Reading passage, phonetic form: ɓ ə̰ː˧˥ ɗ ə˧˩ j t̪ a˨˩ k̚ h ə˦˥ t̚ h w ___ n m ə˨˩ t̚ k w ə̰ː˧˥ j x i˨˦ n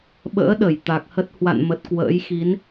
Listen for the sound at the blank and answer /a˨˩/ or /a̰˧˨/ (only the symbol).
a̰˧˨